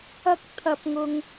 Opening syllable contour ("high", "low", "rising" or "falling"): high